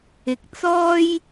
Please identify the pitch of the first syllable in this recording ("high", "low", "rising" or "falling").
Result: low